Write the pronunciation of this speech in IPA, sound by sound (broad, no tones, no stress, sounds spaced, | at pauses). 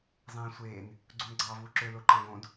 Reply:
zˤ ẽː sʷ eː n | ɡ͡ǀ u n ɡ͡ǀ ɑː v uː ǁ ø l o ǃ ɑ̃ ɡ õ d